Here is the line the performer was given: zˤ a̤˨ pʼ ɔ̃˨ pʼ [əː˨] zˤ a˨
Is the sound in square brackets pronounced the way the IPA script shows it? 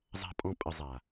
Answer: no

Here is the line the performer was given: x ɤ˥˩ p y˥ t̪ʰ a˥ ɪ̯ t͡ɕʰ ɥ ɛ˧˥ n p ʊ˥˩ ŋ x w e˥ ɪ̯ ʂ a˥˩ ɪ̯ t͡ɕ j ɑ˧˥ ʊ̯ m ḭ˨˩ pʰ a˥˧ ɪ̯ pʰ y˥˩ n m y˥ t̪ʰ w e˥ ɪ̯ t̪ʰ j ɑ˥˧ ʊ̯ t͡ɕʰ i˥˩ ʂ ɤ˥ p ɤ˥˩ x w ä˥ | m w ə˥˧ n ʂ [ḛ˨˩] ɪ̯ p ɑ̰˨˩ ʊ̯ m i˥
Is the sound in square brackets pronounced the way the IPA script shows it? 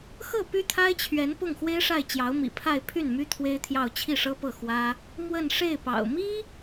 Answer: no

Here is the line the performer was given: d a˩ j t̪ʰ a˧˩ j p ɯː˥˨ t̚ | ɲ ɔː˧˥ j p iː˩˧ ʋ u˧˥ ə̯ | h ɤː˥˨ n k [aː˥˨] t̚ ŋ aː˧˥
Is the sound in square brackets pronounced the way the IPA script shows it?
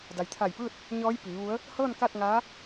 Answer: yes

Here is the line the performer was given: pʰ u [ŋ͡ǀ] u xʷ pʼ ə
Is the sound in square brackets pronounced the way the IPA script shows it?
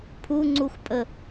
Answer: yes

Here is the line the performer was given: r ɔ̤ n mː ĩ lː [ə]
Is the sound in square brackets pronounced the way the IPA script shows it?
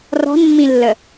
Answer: yes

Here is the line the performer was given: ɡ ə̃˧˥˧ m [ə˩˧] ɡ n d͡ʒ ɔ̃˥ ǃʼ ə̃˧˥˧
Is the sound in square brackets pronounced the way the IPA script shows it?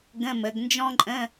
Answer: yes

